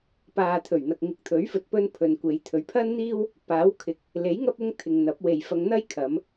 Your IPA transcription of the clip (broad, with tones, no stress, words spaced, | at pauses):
paː˨t̪ʰɵ˨˩ɥn̪ɐ˨k̚ ŋɪ˨˥k̚t̪ʰɵ˨˥ɥfɵ˨t̚pɵ˧n pʰɵ˨nkʷe˨˧j t̪ʰɵ˨˧ɥpʰɐ˥nn̪iː˥w | paː˨˥wkʰɪ˨˥k̚ | le˨˥jŋɐ˧p̚ʊ˧ŋ t̪ʰɪ˨ŋn̪ɐ˨˥p̚we˨jfɐ˧ŋ n̪ɐ˥jkʰɐ˨˧m